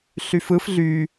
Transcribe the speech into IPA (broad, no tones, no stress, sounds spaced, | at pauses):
ɬ y f ɯ f ɮ y